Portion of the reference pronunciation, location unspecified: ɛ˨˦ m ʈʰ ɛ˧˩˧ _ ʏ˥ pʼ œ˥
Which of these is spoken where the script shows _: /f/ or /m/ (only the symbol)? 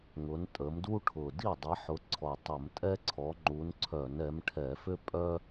f